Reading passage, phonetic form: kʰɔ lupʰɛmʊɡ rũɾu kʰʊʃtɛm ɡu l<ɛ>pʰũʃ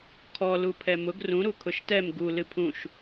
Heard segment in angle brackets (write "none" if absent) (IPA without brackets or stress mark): ɨ